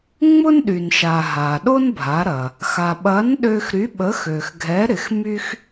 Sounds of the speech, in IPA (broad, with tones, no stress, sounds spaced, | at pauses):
ŋ͡m ʊ˥ n ɗ y˩ n ʃ a˩ ɦ a˩ ɗ o˥ n bʱ a˩˧ ɾ ɐ˩ | x a˩ ɓ ɐ˨˥ n ɗ ø˧ x ɾ y˨˥ ɓ ə˨˥ x ø˩ x ɡʱ ɛ˨˥ ɾ ɪ˩˧ x m y˥ x